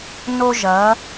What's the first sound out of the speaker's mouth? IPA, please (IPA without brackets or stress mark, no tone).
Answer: n